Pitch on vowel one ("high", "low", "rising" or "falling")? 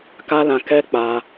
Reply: high